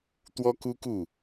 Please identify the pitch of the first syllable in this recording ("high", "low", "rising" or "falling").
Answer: high